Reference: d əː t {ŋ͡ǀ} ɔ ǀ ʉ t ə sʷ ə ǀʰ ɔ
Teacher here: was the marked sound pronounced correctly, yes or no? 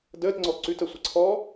yes